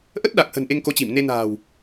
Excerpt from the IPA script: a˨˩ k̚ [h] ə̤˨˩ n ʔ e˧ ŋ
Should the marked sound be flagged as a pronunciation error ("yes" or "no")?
no